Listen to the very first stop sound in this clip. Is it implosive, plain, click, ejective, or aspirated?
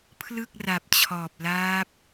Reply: aspirated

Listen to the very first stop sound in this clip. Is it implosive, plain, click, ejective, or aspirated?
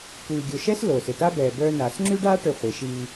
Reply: plain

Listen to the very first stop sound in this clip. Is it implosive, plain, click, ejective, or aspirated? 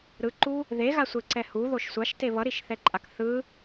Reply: click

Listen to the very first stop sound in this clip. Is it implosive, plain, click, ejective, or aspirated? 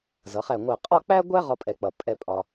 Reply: ejective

